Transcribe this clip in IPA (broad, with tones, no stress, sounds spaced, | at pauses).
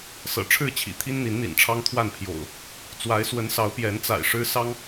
s ɤ̰˨˩ ʈ͡ʂʰ ɻ̩˥˨ t͡ɕʰ ḭ˨˩ t̪ʰ i˦ n n̪ i˨˦ n n̪ ḭ˨˩ n ʈ͡ʂʰ ɑ˦ ŋ t̪ʰ w a˥˨ n pʰ j o̰˨˩ ʊ̯ | t͡s w a˨˦ ɪ̯ s w ə˨˦ n s ɑ˨˦ ʊ̯ p j ɛ˨˦ n t͡s a̰˨˩ ɪ̯ ʂ ɻ̩˦ s ɑ˦ ŋ